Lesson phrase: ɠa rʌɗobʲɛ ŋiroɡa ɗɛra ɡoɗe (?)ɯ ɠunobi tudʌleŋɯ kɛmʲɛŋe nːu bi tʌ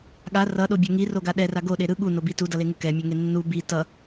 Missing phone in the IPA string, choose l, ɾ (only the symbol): ɾ